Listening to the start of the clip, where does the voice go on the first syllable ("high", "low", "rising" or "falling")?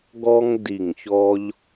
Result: high